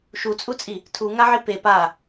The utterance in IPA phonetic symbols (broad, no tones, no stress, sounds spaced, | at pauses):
ʃ u t͡sʼ u t͡sʼ i | tʰ u ŋ a ʕ i p e p a